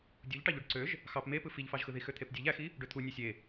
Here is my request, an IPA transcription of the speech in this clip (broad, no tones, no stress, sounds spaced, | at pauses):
dʲ u ʎ ʈ ɑ ʎ u ɖ ǀ ø ʒ | x ɑ p m e p ɯ f i ʎ f ɑ ʒ x ɯ ð i x ø t̪ʰ e p dʲ e ʎ æ x i | ɖ ø t̪ʰ u nʲ ø sʲ e